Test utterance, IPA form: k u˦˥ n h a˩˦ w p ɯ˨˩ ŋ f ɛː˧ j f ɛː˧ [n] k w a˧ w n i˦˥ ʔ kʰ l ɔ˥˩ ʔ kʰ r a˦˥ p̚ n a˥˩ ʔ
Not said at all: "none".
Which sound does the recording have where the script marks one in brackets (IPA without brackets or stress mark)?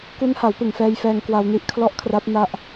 ŋ